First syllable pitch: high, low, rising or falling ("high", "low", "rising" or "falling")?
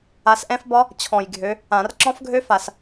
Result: rising